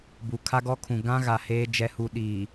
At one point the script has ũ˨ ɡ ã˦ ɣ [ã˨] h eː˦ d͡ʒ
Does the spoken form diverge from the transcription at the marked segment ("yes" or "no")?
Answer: yes